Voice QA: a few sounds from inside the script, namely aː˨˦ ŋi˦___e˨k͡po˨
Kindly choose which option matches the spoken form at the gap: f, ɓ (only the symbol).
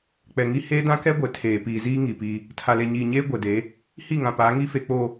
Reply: f